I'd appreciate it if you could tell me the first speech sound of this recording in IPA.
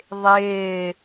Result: ðˤ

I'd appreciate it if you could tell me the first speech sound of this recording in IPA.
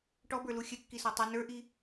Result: ʈ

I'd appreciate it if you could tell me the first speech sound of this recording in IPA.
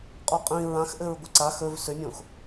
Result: qʼ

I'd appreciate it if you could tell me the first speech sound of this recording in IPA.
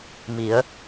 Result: m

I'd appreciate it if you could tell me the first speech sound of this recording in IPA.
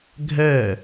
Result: ɡʱ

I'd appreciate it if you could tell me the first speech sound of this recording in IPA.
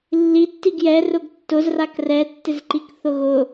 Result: lː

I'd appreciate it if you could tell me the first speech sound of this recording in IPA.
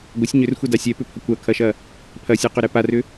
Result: ɡʷ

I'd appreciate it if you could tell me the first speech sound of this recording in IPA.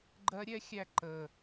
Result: ɡ͡ǃ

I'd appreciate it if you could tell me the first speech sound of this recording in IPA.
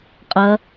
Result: qʼ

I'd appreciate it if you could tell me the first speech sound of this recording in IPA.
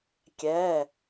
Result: kʲ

